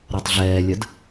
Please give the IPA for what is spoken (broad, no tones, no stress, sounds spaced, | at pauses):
ɾ ɔ tˤ ɮ ɛː lʲ ɜ d